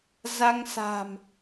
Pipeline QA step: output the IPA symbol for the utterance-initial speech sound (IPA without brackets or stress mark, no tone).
z